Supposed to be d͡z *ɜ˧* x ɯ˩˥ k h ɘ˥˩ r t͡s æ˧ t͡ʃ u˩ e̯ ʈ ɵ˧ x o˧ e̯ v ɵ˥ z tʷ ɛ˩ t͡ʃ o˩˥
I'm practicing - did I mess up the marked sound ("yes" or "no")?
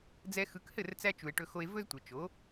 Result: yes